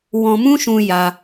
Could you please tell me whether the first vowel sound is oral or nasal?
nasal